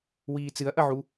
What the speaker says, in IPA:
wiːt͡sɨɐ̯ʔɐʕu

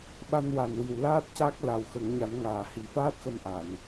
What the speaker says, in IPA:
ɓa˧nwa˨˩nwi˨˩w laː˦˥t̚ ca˦˥k̚la˨˩w xə˨˩˦ŋɲa˨˩˦n ŋaː˨˩hi˨˩˦faː˦˥t̚xə˧m ʔa˨˩˨n

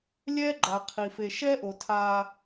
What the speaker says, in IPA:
lʲɛː˦ɡ͡ǃa˨qʰi˨ fe˨ʃɛː˦ʔo˨ tʰaː˦

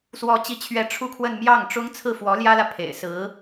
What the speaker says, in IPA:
swɔ˧˥t͡ɕi˧˥t͡ɕʰɥɛ˧˥ ʈ͡ʂʰu˥˧kʰwə˥˧n mjɑ˥˩ŋʈ͡ʂʊ˥ŋ t͡sʰɹ̩˥˩fwɔ˧˥ljä˥lä˨ pʰḛ˨˩ɪ̯ sɹ̩˧˥

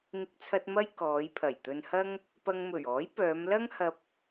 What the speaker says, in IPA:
ŋɪ˧k̚t͡sʰɐ˧t̚ mɐ˥jkɔː˨˧j pʰɐ˨˩jt̪ɵ˧nhɐ˥ŋ | pɐ˧ŋmɵ˨˩ɥɔː˨˥jpœː˨˧m lɐ˥ŋhɐ˧p̚

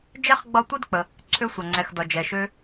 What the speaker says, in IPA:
d͡ʒɛ˥χɡ͡bʌ˦ tʷi˥dk͡pə˩ | ǀʰø˦sʷʌ˩ ŋ͡ǀɛ˨xdʌ˩ d͡ʒɛ˩ʃø˦

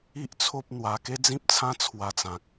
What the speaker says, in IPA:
i˦ʔt͡sʰo˦p̚n̪wa˧ ke˦d͡zĩ˦p̚t͡sʰã˦ t͡sʰwa˧t͡sã˨k̚

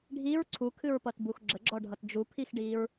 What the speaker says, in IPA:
ɖʱiɹ ǀʰukʰɨɹpʌt buxɡ͡ǁəɡ͡ǁɔ ɖʱʌtd͡ʒupʰixɖiɹ

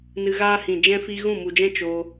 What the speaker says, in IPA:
nɨ˧ ɣaː˧hĩ˨ d͡ʒɛ̃˧fi˧ ɣũ˦˨mu˨d͡ʒɛ̃˦ t͡ʃoː˧

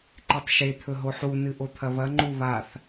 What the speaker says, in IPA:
ǃetˤʃe t̪ʰɵɦoħu nɨʔot̪ʰɐβɐ ŋ͡ǃuβaθ

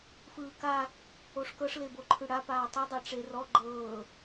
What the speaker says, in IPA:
fɯːka | oʂkɤʂ leboǃʰɯɽa paːtˤu dˤɛʈ͡ʂerɔ ɡ͡ǃɤː

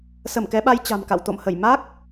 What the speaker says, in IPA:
sə˧˩mkɛ˨˦ɓa˧j t͡ɕa̤˨˩mka̰˧˨w t̪o̰˧˨mhə˧˩j ma˦˥k̚

